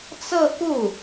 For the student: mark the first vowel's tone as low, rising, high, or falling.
falling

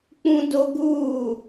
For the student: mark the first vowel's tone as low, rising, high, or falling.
high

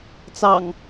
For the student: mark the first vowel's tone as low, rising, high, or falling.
low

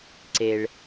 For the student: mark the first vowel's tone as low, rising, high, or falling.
low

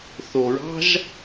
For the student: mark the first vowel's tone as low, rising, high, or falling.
low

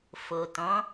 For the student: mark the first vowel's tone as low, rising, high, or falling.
low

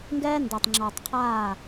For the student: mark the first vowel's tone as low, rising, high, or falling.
high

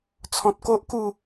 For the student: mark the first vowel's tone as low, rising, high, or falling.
low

